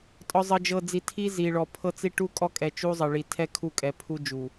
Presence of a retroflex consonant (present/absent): present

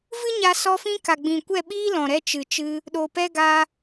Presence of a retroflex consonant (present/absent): absent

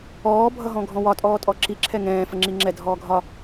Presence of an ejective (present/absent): present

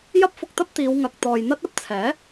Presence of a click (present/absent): absent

